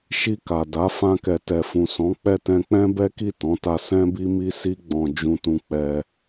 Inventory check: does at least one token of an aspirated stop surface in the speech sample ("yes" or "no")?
no